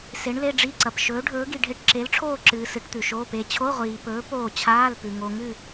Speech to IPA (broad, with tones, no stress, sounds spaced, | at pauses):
s e˨˥ ɳ l e˧˥˧ ɖ͡ʐ i˧˥˧ ǀ ɐ˨ p ʃ ɵː˨˥ ɖʱ ɵː˨˥ ɡ i˨ ɖʱ e˦˨ ʈ ǁ e˨˥ l ʈ͡ʂʰ oː˦˨ ǁ ɨː˨ s ɨ˨˥ ʈ t̪ ʉ˨ ʃ oː˧˥˧ p e˦˨ t͡ɕʰ o˧˥˧ ʁʷ iː˨ p ɵː˨˥ p oː˦˨ t͡ɕʰ aː˧˥˧ l p ʉ˨ ŋ o˨ ŋ ɨ˦˨